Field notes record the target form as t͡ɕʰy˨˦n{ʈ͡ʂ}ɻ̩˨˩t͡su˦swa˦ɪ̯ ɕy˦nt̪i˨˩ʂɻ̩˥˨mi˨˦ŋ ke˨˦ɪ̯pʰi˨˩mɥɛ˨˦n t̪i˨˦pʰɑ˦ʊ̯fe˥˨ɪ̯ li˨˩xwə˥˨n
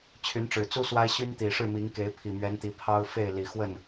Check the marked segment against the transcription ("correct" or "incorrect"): correct